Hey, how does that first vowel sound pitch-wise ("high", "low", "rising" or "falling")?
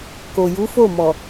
low